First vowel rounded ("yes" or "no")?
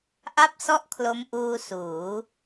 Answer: no